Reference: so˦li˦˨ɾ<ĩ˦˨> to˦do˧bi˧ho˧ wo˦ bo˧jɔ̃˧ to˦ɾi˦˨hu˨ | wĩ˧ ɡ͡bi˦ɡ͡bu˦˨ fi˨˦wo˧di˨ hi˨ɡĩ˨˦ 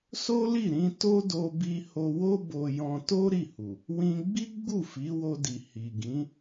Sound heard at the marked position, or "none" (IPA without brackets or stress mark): ĩ˧